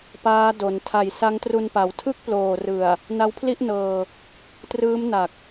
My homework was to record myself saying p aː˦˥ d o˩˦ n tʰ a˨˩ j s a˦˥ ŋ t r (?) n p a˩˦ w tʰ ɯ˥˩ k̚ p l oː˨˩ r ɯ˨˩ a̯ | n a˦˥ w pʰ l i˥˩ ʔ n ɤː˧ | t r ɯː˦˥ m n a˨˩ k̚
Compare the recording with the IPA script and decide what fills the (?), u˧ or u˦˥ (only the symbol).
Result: u˧